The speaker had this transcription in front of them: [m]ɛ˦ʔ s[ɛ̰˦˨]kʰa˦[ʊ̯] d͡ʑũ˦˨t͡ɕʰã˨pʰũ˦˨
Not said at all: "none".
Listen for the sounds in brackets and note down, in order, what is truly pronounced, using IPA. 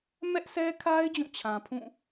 m, ɛ˦, ɪ̯

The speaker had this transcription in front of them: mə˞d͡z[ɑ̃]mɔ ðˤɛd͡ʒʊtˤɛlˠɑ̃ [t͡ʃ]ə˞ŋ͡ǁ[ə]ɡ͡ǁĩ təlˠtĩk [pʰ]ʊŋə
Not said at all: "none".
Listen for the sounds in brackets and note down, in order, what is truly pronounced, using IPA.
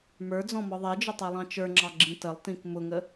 ɔ̃, t͡ʃ, ɑ, m

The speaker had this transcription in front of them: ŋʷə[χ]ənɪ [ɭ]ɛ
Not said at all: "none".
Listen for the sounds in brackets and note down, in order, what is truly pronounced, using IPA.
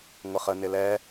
χ, l

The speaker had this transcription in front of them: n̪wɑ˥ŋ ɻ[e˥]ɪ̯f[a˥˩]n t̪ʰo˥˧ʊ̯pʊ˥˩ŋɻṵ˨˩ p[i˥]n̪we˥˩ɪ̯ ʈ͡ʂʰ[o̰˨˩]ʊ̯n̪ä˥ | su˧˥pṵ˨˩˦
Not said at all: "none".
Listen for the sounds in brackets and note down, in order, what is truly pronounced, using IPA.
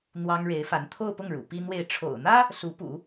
e˧˥, a˧˥, i˥, o̰˨˩

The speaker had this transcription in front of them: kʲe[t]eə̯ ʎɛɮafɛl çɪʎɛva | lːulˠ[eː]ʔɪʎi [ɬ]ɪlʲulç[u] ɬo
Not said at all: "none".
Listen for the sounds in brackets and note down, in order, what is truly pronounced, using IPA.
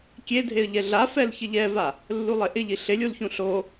dʱ, e, ɬ, ũ

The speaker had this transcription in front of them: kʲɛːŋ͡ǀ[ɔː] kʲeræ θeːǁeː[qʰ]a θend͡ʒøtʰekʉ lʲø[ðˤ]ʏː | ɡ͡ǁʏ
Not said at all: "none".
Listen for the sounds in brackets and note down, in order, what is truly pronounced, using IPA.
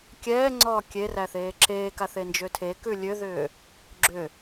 ɔː, k, ð

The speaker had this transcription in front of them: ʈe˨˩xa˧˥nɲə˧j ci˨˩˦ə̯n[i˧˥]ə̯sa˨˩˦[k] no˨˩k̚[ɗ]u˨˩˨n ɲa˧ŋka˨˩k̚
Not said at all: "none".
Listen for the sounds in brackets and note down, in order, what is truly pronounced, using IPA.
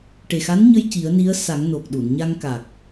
i˧˥, ŋ, ɗ

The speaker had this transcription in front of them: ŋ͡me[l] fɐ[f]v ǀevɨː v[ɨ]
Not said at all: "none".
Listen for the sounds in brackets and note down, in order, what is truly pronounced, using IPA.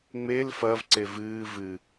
l, none, ɨ

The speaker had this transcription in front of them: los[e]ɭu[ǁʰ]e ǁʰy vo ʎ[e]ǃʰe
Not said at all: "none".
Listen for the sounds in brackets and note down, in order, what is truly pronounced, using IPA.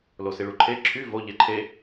i, ǃʰ, e

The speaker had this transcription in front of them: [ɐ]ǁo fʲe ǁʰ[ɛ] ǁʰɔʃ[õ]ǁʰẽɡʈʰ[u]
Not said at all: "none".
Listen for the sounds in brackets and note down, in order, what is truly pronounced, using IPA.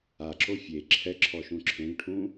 a, ɛ, ũ, ũ

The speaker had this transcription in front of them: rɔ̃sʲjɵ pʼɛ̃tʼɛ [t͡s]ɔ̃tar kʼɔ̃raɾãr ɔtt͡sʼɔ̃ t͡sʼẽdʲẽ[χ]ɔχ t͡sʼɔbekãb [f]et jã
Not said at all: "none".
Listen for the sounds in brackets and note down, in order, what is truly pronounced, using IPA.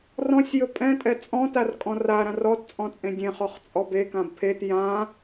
t͡sʼ, χ, pʰ

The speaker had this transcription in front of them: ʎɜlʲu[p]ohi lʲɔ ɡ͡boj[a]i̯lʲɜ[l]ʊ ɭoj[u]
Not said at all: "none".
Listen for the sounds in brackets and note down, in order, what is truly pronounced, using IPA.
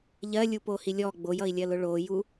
p, ʌ, l, u

